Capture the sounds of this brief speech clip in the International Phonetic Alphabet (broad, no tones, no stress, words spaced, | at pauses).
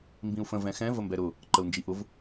mbĩu̯fə̃ vɛ̃xɛ̃ vəmbɛɾʊ | ǃəu̯nd͡ʒiʔʊv